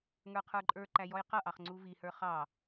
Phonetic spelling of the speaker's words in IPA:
ŋ ə˞ qʰ ə˞ ǃʼ ə˞ ǃ æ j ɔ j q ʌ ʔ ɑ χ ŋ͡ǀ u v i h ə˞ χ ɑ

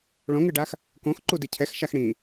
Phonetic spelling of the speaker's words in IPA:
ɭ õ ŋ ɨ ɖ a x | k õ x ǃ u d i cʰ ɛ x ʃ a x ɽ ĩ

